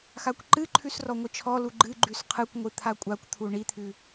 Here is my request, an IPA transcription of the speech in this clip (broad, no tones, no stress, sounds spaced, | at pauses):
x a kʷ ǃ ɨ ǃʰ ʉ s r ɔ ŋʷ ɨ t͡ʃʰ ɔ l u ɡ͡ǃ ɨ ɡ͡ǃ ʉ s qʰ ɨ kʷ ŋʷ ɨ t̪ʰ a kʷʼ a kʷ t̪ʰ u ɳ i t̪ʰ ʉ